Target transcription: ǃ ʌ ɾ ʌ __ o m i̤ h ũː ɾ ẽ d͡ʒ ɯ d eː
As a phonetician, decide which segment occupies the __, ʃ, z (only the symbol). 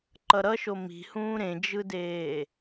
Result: ʃ